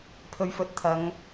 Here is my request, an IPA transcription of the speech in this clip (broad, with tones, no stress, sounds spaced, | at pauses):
pʰ ɵ˨˧ ɥ f ɵ˨˥ t̚ t̪ʰ ɐ˨˧ ŋ